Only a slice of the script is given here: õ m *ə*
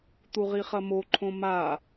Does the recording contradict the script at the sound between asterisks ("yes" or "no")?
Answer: yes